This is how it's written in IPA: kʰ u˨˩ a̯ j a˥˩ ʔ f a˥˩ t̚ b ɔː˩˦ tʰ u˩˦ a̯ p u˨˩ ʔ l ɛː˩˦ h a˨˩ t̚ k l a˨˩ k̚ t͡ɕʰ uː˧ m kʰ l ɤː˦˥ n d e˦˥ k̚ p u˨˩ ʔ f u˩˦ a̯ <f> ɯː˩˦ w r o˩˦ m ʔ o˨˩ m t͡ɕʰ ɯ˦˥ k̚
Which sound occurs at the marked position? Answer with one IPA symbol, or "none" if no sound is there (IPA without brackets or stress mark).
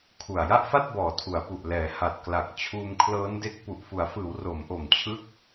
f